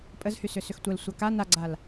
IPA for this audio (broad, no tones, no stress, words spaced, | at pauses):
pʼəzhysʏ sʏxtʷəl sʷaka naɡ͡ǀal